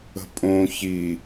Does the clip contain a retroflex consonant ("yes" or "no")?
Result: no